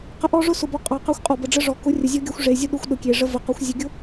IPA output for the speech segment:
q ə˨ ʔ ɔ˦ ʐ ʊ˦ s ʊ˨ b ɔ˨ qʼ ɑ˨ q ɑ˦ xʷ qʼ ɔ˨ b ə˨ ɖ͡ʐ ə˦ ʐ ɔ˨ k ʊ˨˦ rʲ ə˨ zʲ ɔ˦ ɡʲ ɑ˦ xʷ ʐ e˨ zʲ ʊ˦ ɗ ʊ˦ xʷ ɗ ʊ˨ kʲ e˨ ʐ ə˦ v ə˨ q ɔ˨˦ xʷ zʲ ə˨ ɡʲ ʊ˦

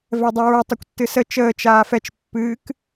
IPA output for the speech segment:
v ɛ dˤ ɨ ɹ ə tˤ ɨ kʷ tː ɨ s ə t͡ʃ əː t͡ʃ aː f ɛ t͡ʃ pː ɨː k

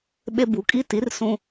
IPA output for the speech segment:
ɓ e˦ b u˨˦ kʼ i˦ t i˨˦ r s ũ˦

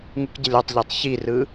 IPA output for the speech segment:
ŋ u k ɟ ə lʲ ɔ tˤ ʎ ɜ tˤ ç i r ɯ

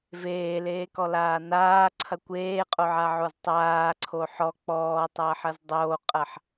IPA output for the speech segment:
v eː l eː k ɔ l aː n aː ǀʰ ɐ kʷ eː qʼ o ʕ a ʕ o z tˤ aː ǀʰ o ħ ɔ k͡p ɔː tˤ ɐː ħ ɐ z dˤ oː qʼ ɐ ħ

